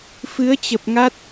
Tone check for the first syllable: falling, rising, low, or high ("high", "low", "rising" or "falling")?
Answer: rising